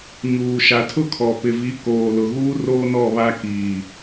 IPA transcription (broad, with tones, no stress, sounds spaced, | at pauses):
ɲ uː˨ ʃ a˨ tʰ ʊ˦ kʰ ɔ˨ p ɪ˨ v i˨˦ k oː˨ l ʊ˨ ɣ uː˦ r oː˦ n ɔ˦˨ β a˦ k iː˨